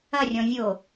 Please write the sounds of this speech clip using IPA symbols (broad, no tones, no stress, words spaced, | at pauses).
ɐrʲɔ̃ vʲo